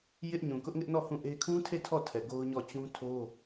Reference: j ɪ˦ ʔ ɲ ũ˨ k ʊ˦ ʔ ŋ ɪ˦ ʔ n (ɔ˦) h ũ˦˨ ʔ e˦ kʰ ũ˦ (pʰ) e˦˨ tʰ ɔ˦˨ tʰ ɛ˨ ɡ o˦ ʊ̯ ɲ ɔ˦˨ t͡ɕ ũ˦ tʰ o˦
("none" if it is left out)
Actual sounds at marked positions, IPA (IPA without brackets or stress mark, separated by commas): ɔ˦˨, tʰ